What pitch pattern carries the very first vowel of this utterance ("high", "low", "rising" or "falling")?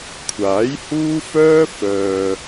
rising